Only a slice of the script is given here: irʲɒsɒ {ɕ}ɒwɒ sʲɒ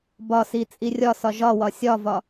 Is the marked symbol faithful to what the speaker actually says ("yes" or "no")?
no